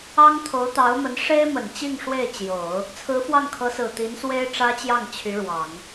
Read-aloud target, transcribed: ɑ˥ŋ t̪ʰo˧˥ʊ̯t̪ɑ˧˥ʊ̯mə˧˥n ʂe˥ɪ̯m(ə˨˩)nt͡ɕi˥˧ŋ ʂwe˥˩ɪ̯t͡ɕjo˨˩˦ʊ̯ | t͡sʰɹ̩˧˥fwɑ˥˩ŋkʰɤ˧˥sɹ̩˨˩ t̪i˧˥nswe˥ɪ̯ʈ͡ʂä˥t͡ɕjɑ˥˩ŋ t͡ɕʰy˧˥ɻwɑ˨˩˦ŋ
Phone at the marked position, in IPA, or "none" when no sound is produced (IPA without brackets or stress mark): ə˨˩